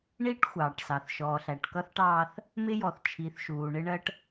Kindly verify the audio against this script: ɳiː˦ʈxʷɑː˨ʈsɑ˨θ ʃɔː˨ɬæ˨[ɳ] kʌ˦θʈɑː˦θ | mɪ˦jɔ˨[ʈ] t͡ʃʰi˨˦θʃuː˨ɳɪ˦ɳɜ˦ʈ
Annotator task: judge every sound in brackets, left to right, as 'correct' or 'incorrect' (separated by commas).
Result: incorrect, incorrect